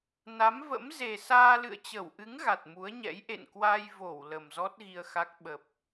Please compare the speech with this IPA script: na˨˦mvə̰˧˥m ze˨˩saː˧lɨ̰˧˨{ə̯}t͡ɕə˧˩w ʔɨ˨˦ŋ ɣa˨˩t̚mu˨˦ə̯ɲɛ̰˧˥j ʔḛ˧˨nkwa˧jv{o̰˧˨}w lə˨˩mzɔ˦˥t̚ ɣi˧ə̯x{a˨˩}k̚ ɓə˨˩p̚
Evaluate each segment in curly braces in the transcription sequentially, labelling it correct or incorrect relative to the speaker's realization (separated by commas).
correct, incorrect, incorrect